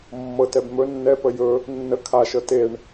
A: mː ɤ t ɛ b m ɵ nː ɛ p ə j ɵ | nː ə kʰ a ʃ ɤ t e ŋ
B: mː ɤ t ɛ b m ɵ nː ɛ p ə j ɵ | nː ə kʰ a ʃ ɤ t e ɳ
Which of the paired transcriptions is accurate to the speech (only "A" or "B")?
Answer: B